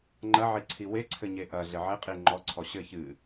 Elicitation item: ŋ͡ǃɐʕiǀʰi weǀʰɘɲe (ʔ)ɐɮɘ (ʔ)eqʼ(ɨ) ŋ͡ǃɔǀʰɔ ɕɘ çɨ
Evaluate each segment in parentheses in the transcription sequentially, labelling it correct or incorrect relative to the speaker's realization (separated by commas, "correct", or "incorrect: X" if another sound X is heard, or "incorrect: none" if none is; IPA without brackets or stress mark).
correct, incorrect: ʕ, incorrect: i